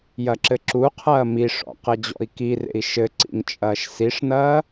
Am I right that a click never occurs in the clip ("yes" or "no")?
no